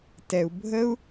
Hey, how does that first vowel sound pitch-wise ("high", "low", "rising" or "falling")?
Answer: low